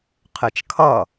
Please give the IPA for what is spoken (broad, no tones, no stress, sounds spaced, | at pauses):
qʰ ɪ t͡ʃ kʰ ʌ